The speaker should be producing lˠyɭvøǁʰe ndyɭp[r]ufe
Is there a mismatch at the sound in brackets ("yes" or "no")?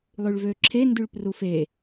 no